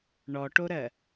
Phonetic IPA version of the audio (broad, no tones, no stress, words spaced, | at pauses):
ɳɔʈoɾɜ